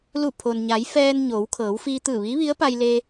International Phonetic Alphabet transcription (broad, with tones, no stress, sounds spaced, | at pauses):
l u˧˩ pʰ o˩ n ɲ a˩˧ j f ɛː˧ n ɲ oː˩˧ w kʰ ɤː˩˧ w f iː˧ t̪ ɯː˧˩ ʋ iː˧˥ ʋ i˧˥ ə̯ p a˧ j l e˧